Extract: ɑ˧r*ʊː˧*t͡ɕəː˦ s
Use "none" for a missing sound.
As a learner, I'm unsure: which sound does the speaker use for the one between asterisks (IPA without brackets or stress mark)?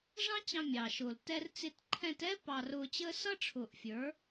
ʊː˧